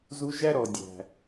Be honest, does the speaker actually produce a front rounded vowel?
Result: no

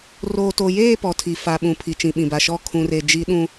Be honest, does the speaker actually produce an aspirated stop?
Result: yes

